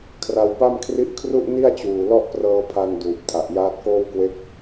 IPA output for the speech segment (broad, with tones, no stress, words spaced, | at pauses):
kʰra˧wpa˥˩m kʰri˦˥ʔkʰru˥˩ʔ ni˥˩a̯t͡ɕuː˨˩ lɔ˥˩ʔprɤː˧pʰa˧n duː˨˩p̚tʰa˨˩ʔjaː˦˥t̚koː˥˩w kwe˦˥k̚